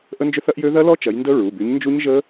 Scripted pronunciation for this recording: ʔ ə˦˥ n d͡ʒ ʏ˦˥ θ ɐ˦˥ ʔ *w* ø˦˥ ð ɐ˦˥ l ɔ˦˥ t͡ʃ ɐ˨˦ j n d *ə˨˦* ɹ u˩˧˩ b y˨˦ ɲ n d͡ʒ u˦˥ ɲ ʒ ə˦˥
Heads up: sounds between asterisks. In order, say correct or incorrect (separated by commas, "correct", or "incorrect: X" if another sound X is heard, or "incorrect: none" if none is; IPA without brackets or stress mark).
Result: incorrect: j, incorrect: ə˦˥